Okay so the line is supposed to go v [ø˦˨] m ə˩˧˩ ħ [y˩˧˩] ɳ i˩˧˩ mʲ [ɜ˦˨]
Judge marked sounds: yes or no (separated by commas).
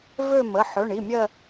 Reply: yes, no, yes